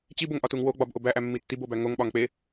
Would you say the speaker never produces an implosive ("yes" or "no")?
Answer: no